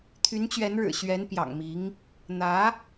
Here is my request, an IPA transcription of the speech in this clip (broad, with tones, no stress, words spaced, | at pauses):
t̪ʰy˧˥nt͡ɕɥɛ˧˥nɻɻ̩˨˩ ɕɥɛ˧˥npjɑ̰˨˩ŋmi˧˥ŋ | n̪ä˧˥